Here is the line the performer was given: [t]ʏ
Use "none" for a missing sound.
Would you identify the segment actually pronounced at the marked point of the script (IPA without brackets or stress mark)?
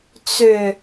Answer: t͡s